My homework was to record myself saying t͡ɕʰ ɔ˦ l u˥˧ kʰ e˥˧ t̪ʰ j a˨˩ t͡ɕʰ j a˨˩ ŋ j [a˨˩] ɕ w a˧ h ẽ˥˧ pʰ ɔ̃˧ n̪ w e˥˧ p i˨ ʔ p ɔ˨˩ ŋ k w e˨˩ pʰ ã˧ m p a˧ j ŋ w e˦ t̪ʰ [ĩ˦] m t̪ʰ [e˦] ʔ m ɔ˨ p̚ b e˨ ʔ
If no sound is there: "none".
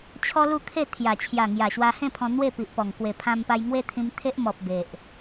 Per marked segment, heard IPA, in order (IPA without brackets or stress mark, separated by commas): a˨˩, ĩ˧, e˦